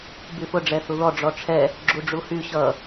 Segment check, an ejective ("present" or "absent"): absent